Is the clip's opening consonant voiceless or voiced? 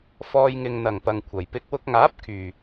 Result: voiceless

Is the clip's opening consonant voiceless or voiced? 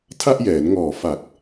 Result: voiceless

